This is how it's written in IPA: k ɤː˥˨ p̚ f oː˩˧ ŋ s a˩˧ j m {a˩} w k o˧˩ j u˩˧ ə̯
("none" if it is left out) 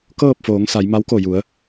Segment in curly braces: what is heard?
a˧˥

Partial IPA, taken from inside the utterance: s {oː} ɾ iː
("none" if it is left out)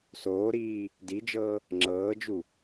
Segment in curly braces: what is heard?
oː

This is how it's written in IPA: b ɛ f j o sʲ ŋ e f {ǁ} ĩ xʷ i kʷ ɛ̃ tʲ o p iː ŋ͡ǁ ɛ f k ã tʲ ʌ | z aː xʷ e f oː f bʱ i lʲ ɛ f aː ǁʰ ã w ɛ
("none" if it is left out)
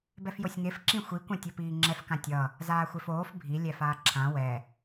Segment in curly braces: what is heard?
ǁ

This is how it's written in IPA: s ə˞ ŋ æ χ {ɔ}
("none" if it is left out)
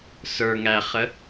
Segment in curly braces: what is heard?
ə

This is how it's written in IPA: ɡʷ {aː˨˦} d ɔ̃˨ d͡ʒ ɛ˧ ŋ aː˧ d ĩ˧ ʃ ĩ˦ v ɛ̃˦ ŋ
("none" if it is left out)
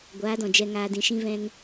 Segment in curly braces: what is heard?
aː˨˦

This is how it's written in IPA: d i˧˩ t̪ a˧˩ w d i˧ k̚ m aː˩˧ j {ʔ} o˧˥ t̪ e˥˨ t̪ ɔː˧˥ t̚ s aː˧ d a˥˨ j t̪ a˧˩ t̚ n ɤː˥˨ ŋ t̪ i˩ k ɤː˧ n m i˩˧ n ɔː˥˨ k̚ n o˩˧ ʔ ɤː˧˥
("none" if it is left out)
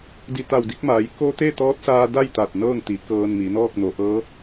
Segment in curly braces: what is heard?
k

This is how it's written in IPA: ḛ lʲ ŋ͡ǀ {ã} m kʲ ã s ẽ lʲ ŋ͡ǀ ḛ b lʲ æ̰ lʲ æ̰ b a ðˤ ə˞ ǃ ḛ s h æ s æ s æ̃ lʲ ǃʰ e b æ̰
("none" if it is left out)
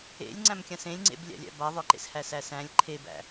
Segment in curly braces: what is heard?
æ̃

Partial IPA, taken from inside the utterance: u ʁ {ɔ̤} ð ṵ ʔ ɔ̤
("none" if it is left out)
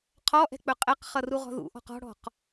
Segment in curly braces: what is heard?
ɔ̤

